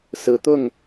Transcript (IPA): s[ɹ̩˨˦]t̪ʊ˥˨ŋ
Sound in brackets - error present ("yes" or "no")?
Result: no